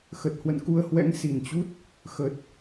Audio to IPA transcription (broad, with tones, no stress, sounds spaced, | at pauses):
x ə˨˩ t̚ h w ə̰˧˨ n k u˧ ə̯ h w ɛ̰˧˥ ŋ s i˨˩ n t͡ɕ u˦˥ t̚ | x ə˨˩ t̚